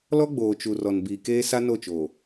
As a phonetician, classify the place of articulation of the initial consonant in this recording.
alveolar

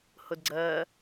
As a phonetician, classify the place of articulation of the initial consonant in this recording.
glottal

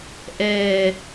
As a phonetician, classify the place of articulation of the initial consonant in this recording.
glottal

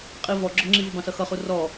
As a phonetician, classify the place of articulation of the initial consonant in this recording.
uvular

